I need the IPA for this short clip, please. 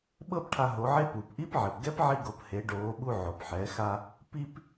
ɓ ɤ˥ p ʈʰ a˧ ɦ o˩˧ ʕ e˧˥ p uː˩ p ʔ i˧˥ p ʕ e˩ p ɡ ɛ˧˥ p ʕ i˧ ɡ o˩˧ p h e˩˧ ɖ oː˩˧ ɓ u˧ ʕ o˩ p ħ ɛ˩˧ x a˧ | p i˥ p

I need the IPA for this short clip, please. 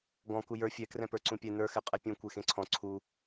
ɡ ɔ̃ k u j ə˞ fʲ ɛ k r ɛ̃ p ə˞ ǀ ũ pʲ ɛ n ə˞ x ɛ qʼ ɛ pʲ ũ kʷ e x ẽ ǀʰ ɔ̃ ǀʰ u

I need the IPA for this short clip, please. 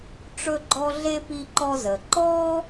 ʈ͡ʂ ɵ˥ ɡ͡ǃ ɔ˥ ɮ e˥ p i˥ ǃ ɔ˥ z ə˩ ǃ ɔ˥

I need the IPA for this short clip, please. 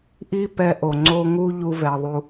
ʔ i˧ p ɛ˧ ʔ o˨ ŋ͡ǀ o˧ ŋ u˦ ʎ u˧ v ɛ˨ ðˤ u˧

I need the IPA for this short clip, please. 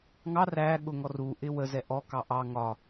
ŋ ɑ r æ ɠ ʊ ŋ ɔ r u ʔ ɪ w ə z ɛ ʔ ɔ k ɑ ʔ ɑ ŋ ɒ

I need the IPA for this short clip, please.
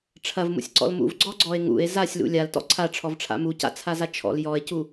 ʈ͡ʂʰ ɐ v m ṵ sʲ ǀ ɔ̰ l m ṵ v ɡ͡ǀ ɔ ɡ͡ǀ ɔ e̯ ŋ ṵ e̯ z a sʲ l ṵ lʲ a l t ɔ̰ ǀʰ a ʈ͡ʂʰ ɔ v ʈ͡ʂʰ a̰ m u c a̰ t͡sʰ a z a t͡ʃʰ ɔ̰ l j ɔ e̯ c u

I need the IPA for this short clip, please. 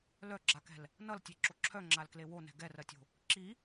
l œ ɡ͡ǁ a k ɛ̤ l | n ʌ l tʲ e ǁ o ǁʰ œ ŋ͡ǁ a l k l e w o n ɛ̤ ɡ ɛ r ɜ tʲ o̤ | ǁ i

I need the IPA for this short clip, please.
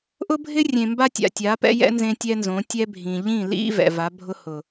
ʔ ʊ˦ bʱ ɪ˦ rʲ ẽ˨ m b a˦ tʲ a̰˨ tʲ a˨˦ p ɛ̰˦ j ɛ̰˦ n z ẽ˦ tʲ ɛ˦ n z õ˨˦ tʲ ɛ˦ bʱ ĩ˨ ʎ ĩ˦˨ l ḭ˦ v ɛ̰˨ v a˨˦ bʱ ʊ˦ h ʊ˨

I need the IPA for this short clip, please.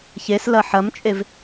ç e s l ɐ ħ ɐ m t͡ʃʼ e v

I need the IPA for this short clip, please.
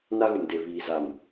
n a˦ ɣ ʊ˨ m d e˨ β iː˨ z a˨ m

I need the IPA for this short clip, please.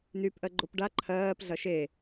n y p ʔ ɜ ɡ͡ǃ o p ɖ a ǃʰ ɜː p ɮ ɐ ʃ e

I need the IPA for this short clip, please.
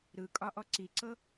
ɾ ɯ kʼ ɒ ʔ ɔ ǀ i ǀ ɤ

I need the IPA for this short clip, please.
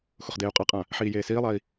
x ʊ χ d eː u̯ qʼ a qʼ ã | ħ iː j eː s iː lˠ a i̯

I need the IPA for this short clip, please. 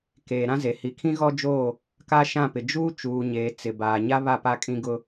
k eː˨ ɾ ã˦ z e˨ h i˨ kʰ ĩ˦ ɣ ɔ˦ d͡ʒ oː˦˨ | k a˦ ʃ ã˦˨ p ɪ˨ d͡ʒ uː˦ t͡ʃ uː˨ ɲ eː˨ t͡s ɪ˨ b aː˨ ɲ a˦ β a˦˨ p a˦ kʼ ĩ˦ ɡ ʊ˦

